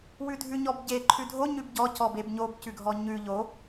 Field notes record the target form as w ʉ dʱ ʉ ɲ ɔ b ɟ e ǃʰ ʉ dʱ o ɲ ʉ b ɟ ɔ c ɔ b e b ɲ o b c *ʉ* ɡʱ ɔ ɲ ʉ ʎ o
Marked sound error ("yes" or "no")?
no